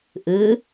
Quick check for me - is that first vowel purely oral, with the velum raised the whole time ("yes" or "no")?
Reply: yes